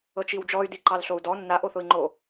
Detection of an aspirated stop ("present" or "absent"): absent